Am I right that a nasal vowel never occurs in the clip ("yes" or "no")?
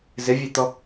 yes